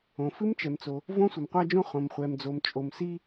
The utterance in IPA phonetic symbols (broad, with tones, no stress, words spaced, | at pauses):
õ˩fɨ˥mt͡ʃɛ˩mt͡so˩ | võ˥ sʷə˩mqʷa˥d͡ʒõ˥ χõ˩mχʷɛ˩md͡zo˩m t͡ʃʼo˩msi˥